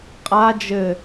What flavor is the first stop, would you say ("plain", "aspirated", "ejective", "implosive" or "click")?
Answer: ejective